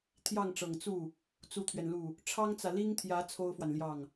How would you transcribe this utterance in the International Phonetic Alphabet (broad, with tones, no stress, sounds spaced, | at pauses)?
t̪ʰ j ɑ˥˩ ŋ ʈ͡ʂ ɤ˨˩ ŋ t͡s u˥˩ | t͡s u˥ t̪ʰ ɥ ɛ˨ n l u˥˩ | ʈ͡ʂʰ ɑ˥ ŋ t͡s ä˨ l i˥ ŋ t̪ʰ j ä˧˥ t͡sʰ o˥ ʊ̯ f w a˨ n l j ɑ˥˩ ŋ